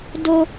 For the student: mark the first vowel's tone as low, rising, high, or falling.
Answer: high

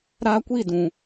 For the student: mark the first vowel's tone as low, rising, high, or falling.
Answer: high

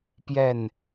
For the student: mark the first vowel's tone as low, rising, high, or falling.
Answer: falling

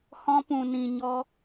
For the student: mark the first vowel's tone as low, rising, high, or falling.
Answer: high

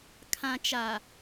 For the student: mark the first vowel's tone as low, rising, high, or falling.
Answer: low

